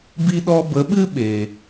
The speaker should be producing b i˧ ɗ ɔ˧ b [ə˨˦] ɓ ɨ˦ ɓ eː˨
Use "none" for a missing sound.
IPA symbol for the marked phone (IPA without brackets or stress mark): ə˨˦